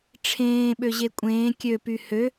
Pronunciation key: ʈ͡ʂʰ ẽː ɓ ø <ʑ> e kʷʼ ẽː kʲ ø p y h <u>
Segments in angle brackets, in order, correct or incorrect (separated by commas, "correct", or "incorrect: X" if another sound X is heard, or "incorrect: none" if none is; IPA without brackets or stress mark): correct, incorrect: ø